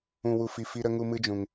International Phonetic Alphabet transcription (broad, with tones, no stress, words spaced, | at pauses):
ũ˨wu˨fi˨ fi˦ ɾə˦ŋu˦mɨ˦d͡ʒũ˨ŋ